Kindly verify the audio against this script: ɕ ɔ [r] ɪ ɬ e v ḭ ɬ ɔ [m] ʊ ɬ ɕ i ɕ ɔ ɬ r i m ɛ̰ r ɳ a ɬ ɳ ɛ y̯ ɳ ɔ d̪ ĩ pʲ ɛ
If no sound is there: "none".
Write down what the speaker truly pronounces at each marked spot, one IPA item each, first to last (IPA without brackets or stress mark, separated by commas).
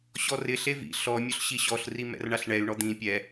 r, mʲ